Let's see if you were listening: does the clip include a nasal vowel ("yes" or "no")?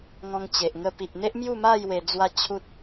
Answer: yes